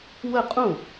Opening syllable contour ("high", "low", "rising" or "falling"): falling